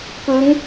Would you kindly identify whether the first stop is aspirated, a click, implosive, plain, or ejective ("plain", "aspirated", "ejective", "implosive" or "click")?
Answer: plain